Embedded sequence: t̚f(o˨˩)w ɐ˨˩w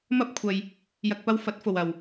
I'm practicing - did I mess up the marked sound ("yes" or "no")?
no